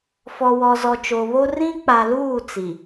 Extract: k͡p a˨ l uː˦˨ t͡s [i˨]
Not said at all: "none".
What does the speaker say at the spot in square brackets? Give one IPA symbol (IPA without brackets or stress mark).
i˨